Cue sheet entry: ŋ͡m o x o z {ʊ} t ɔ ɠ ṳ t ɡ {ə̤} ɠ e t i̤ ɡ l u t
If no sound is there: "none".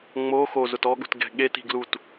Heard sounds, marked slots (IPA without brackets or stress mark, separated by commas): ʊ, ɛ̤